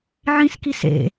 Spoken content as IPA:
ʕ ĩ s k i s ḛ

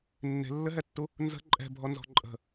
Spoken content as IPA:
nː e̤ lː ɘ ɦ ɛ tː u | n z ə̤ ǃʼ ɛ̤ bʱ ɔ n z ɔ̤ ǃʼ ə̤

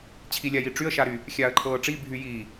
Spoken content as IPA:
t͡ɕʰ i lʲ a j i ʈ͡ʂ y ə̯ ʃ a ɾ y | xʲ aː ə̯ ǃʰ ɤː ʈ͡ʂ i bʱ y j iː

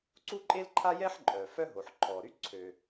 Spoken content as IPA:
ǀ u˥ ǃʼ e˥ l ǃʰ a˥ j ɛ˥ ħ ǃʼ œ˩ f œ˥ ɦ o˩ ħ ǃʰ ɔ˩ ɾ y˥ ǀʰ ø˩

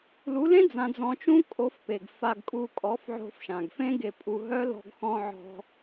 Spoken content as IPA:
l u˨˦ l ẽ˦ d͡z ã˧ d͡z ɔ̃˧ t͡ʃ ũ˦ kʼ o˨˦ f p e˨ ɡ f a˧ ɡ kʼ u˧ kʼ ɔ˨˦ f ʕ o̤˧ f ʃ ã˨ ɡ f ẽ˦ ɡ e˧ pʼ u˧ ɦ œ˦ l ɔ̤˧ ɡ x ɔ̃˧ ʕ ɔ̤˧

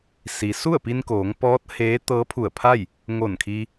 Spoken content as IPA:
s i˩ s u˥˨ ə̯ p i˧ n k oː˩˧ ŋ p ɔː˧˥ t̚ h eː˧˥ t̪ ɤː˧˥ pʰ u˧˩ ə̯ pʰ a˥˨ j | ŋ o˧˩ n kʰ i˧

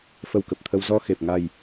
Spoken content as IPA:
f ə˧ w k ə˨˩ p̚ t̪ʰ ə˧ w z ɔ˧ x e˨˩ p̚ ŋ a˨˩ j

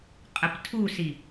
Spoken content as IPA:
qʼ ə p tʰ u s i

